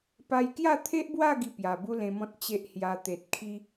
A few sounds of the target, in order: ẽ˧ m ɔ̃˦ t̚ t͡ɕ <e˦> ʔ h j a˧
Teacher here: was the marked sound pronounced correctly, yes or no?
yes